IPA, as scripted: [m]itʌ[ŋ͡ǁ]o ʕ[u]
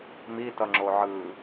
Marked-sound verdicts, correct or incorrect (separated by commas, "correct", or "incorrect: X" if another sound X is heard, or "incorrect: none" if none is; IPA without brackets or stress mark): correct, correct, incorrect: ɯ